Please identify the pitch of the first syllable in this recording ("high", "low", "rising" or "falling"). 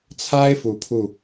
high